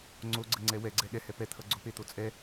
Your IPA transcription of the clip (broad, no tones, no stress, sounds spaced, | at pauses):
ŋ͡ǀ o ɡ͡ǀ ə ŋ͡ǀ ɛ w ɛ ɡ͡ǀ ɛ ɠ ɛ h ɛ p ɛ t̪ʰ ʌ ɡ͡ǀ o p e t̪ o t͡sʼ ɛ